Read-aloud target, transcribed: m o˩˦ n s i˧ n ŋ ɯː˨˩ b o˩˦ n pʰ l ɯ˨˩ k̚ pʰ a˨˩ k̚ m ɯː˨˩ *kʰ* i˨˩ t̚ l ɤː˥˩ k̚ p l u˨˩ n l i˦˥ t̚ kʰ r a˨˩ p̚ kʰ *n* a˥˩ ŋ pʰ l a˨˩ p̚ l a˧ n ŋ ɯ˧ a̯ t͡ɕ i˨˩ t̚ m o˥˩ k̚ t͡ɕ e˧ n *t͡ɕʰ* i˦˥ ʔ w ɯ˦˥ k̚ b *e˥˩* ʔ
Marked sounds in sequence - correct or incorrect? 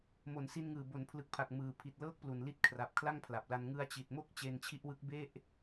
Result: incorrect: pʰ, incorrect: l, correct, correct

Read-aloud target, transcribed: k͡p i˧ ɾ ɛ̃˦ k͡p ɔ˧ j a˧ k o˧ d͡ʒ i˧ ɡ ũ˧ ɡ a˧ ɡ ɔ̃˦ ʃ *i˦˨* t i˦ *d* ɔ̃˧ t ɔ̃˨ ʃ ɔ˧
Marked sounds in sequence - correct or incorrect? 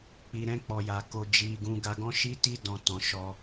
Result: incorrect: i˦, correct

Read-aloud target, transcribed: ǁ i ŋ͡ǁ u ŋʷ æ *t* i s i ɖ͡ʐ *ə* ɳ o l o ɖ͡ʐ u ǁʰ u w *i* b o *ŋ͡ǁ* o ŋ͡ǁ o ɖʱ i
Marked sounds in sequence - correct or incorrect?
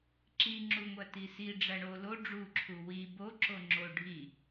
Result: correct, incorrect: æ, correct, incorrect: ǁ

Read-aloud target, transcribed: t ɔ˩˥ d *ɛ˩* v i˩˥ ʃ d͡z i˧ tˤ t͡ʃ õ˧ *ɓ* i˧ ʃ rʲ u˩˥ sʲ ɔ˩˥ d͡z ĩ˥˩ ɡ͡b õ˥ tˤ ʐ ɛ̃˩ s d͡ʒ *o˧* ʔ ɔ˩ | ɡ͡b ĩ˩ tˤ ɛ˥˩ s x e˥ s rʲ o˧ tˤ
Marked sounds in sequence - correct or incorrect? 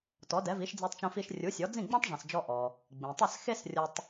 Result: incorrect: ɛ˩˥, incorrect: f, incorrect: ɔ˧

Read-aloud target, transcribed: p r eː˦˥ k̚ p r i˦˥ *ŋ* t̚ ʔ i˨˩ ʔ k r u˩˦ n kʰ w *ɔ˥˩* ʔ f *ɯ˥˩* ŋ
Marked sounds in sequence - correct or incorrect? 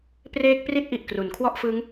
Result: incorrect: none, correct, incorrect: ɯ˦˥

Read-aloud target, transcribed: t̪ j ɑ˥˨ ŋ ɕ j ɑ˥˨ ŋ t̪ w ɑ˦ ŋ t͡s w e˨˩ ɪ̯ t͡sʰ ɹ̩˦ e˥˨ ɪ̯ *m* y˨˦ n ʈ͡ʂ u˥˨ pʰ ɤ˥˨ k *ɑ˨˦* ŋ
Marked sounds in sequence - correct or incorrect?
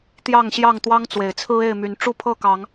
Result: correct, correct

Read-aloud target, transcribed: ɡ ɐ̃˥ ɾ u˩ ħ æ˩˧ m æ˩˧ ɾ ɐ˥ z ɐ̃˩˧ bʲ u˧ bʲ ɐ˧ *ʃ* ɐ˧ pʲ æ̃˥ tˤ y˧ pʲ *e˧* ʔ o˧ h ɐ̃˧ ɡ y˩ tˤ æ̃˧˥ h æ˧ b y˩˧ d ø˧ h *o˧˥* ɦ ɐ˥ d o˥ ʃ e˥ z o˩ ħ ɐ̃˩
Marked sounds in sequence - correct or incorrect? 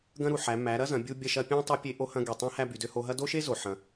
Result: correct, correct, incorrect: o˧

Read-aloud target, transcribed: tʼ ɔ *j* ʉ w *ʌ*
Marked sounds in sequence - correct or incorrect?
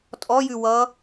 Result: correct, correct

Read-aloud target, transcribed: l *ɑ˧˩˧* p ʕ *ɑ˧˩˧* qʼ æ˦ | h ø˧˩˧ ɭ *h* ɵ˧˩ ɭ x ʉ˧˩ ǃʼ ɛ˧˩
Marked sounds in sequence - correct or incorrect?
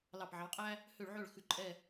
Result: incorrect: ɑ˧˩, incorrect: ɑ˨˦, incorrect: ʕ

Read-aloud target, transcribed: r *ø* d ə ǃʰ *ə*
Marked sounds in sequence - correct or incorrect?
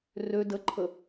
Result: correct, correct

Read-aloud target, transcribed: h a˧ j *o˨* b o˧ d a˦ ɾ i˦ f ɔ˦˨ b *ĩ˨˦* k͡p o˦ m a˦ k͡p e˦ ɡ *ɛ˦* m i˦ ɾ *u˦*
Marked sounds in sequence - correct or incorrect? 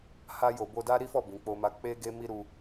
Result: correct, correct, incorrect: e˦, incorrect: u˧

